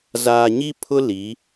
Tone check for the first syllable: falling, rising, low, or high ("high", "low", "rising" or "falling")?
low